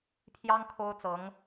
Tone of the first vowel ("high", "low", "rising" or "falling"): high